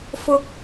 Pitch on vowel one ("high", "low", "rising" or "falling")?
high